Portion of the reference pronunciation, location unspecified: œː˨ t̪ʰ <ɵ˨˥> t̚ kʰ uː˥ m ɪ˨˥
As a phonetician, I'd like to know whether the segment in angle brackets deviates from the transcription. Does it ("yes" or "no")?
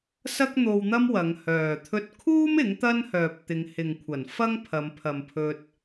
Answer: yes